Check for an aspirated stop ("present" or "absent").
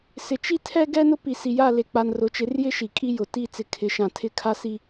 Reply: present